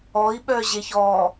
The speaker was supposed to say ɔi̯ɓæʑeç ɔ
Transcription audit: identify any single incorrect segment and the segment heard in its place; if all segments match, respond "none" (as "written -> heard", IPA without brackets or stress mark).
æ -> œ